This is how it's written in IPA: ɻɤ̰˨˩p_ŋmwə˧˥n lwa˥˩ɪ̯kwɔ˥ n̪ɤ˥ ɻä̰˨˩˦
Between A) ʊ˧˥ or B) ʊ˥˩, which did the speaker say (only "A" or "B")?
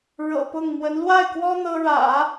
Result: B